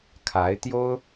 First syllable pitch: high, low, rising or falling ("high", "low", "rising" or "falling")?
rising